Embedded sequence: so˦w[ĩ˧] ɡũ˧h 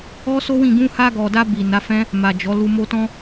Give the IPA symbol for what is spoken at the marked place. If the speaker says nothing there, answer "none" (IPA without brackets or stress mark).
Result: ĩ˦˨